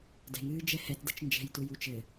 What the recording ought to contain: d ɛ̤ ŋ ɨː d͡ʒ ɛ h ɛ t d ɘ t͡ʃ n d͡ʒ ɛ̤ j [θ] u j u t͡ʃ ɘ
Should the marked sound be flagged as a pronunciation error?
yes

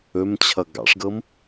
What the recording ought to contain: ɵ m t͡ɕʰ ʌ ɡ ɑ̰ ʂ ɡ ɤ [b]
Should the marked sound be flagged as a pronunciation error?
yes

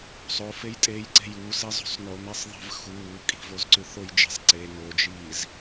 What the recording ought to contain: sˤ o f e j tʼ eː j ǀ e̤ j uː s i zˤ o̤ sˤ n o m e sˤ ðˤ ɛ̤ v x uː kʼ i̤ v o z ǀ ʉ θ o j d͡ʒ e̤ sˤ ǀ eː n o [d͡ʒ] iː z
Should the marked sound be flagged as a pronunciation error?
no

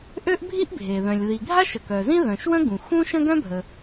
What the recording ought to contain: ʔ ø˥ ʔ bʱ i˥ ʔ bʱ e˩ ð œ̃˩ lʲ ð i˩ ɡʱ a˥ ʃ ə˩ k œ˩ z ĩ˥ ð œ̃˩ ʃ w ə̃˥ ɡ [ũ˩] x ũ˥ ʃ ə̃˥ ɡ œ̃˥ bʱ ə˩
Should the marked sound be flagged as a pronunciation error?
no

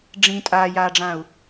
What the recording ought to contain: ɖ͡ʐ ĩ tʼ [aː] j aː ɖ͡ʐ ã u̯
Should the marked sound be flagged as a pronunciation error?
no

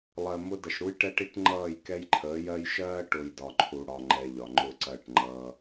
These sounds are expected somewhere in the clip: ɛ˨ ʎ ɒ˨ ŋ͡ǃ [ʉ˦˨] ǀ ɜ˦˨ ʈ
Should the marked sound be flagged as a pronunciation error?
yes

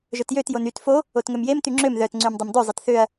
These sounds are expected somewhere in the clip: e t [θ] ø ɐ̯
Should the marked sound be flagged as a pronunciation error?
no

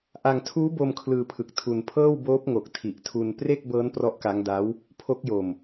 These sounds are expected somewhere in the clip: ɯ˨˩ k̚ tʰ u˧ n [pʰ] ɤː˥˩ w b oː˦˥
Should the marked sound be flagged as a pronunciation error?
no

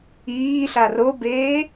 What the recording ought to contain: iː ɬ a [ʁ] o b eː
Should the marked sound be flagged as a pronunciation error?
yes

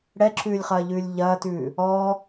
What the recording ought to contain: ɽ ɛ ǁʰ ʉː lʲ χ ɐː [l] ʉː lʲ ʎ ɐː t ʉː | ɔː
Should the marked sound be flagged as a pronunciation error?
yes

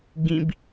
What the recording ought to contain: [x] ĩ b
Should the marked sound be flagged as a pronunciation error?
yes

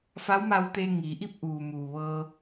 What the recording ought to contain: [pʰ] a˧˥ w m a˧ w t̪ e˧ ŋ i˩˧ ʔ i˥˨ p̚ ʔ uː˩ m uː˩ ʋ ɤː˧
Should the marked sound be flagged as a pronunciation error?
yes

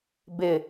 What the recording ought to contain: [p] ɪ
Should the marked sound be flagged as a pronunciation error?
yes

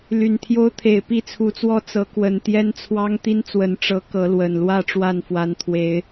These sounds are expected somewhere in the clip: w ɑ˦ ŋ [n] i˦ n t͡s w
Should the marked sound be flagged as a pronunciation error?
yes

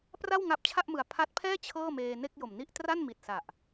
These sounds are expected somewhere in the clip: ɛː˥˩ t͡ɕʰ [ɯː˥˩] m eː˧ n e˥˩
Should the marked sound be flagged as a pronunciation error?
yes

